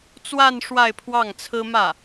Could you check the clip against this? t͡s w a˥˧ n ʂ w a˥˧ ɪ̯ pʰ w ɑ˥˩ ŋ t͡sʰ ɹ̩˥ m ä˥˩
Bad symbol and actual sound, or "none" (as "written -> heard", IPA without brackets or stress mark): none